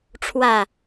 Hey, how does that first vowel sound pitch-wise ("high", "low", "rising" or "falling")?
low